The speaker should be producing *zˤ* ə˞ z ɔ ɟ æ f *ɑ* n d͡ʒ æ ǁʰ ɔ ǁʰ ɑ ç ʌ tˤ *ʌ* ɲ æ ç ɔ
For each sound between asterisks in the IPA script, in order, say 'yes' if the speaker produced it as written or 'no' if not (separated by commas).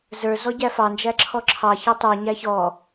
no, yes, no